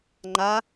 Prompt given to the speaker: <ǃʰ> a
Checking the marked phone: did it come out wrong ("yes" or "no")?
yes